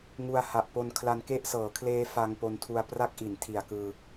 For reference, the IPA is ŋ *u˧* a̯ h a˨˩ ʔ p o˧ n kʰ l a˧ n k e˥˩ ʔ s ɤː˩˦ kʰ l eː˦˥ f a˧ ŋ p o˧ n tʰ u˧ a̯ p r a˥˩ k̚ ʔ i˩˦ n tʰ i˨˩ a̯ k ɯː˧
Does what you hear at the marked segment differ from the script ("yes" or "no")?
no